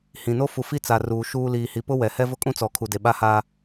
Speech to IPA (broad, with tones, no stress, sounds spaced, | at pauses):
h ĩ˨ n o˦ f u˨ f i˦ t͡s a˨ r uː˨ ʃ uː˦ l iː˨ h i˨ p ʊ˦ w ɛ˨ h ɛ˦ v ʊ˦ kʼ ũ˦ t͡s ɔ˨˦ kʰ u˨ d e˨ ɓ a˦ h aː˦